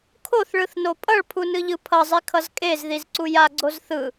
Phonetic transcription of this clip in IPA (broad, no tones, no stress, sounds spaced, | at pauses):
kʰ o θ ɭ ɯ θ n o pʼ ʌ ɭ pʰ u n ɯ ʎ ɯ pʰ ʌ zˤ i kʰ ʌ z kʼ e z ð i z ǀ u j a ɡ͡ǀ o z θ ɯ